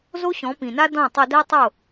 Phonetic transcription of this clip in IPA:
zo˦ɕɔ̃˨˦pĩ˨na˦ dɔ̃˦˨tˤʊ˧dɛ˦tˤo˦˨

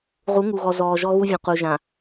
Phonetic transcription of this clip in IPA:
ʁu˨˦ŋu˨ɣɔ˨ zɔː˨ʒɔ˦ɣu˦vʲũ˨ qu˨ʒã˨

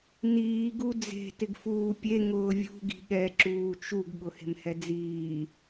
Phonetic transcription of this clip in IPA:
niː ɡud͡ze̤ tɪɡfuːpʲe ŋʊːvʲṳ ɡi̤ɠɛ ǁuːt͡ʃuɡ ɠʊhe̤mhɛd͡ziː

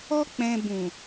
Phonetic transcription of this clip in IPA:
ɔ˧k͡pɛ̃˨ bũ˨

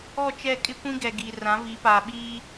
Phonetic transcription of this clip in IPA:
ɔ˦˨t͡ʃɛ˦˨ kʼɪ˦kʷĩ˦ɡɛ˨ ɡiː˨ rã˨˦vi˨˦paː˨ ɓiː˦

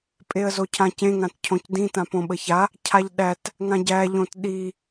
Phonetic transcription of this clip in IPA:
pʼeə̯zocʰãcẽ ŋãtcʰõcdĩ tãpõɓəça | cʰaʎɗæt | ŋãɟæ ʎõtɗi

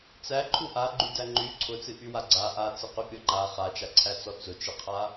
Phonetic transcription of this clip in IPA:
t͡sæǃʰu ʔaɡ͡ǃydæ ŋ͡ǃy ǀʰʊt͡sɨʔywa ɡ͡ǀa ʔat͡sɨqypʲɔ ŋ͡ǃa χat͡ʃaǀʰæt͡sɔ t͡sʊt͡ʃɨqʰa

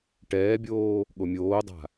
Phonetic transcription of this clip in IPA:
ʈɛːbʲoː | ɠomʲoːdˤa̤

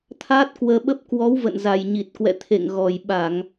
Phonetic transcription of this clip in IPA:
t̪ʰaː˦˥t̚kwəː˧ɓə˦˥p̚ kwɔ˨˦wvə̰˧˨n za˨˩jɲi˨˩t̚kwɛ̰˧˨ t̪ʰḛ˧˨ŋɣɔ˨˩jɓa˧˩˨ŋ

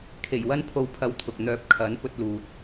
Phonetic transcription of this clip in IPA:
kʰe˨˩jwɐ˥npʰo˧w pʰɐ˧wt̪ʰʊ˨k̚n̪œː˧p̚ kʰɐ˨˥n pɵ˧t̚luː˨t̚

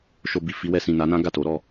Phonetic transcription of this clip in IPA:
ʃo˧bi˨fi˧wɛ˧ sĩ˨na˨˦nã˦ ɡa˦˨to˨˦ɾɔ˦˨

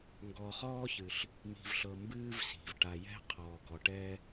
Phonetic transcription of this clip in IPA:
ŋɡɔː˨χɔː˥çɨ˩ɬ | mi̤˨vɬɤ˨ mbɨː˥vsi̤˩v ʈa˨jɛ̤˥ qʰɔː˨ɡɔ˨ʈɛ˥

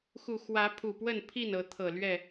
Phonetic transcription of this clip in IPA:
xu˨˩xwä˨˦ pʰu˨˩pwə˥˨npʰi˥˨n ɤ˨˦t̪ʰɤ˨˩lɥɛ˥˨

